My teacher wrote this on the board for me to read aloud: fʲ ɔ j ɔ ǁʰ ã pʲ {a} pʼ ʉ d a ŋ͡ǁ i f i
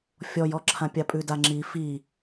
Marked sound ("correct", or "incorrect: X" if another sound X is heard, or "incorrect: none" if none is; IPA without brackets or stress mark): correct